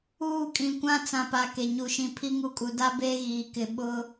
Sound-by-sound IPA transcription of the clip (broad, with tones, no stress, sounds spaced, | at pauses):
uː˦˨ kʼ ĩ˨ kʷ ã˦ t͡s ã˨ p a˨ k e˨ ɲ u˨ ʃ ĩ˨ pʰ i˦ ŋ u˦ kʼ u˨ d a˦ b eː˦ ɣ iː˨ k ɪ˨ ɓ ʊ˦